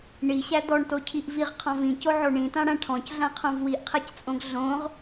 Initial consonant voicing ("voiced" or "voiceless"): voiced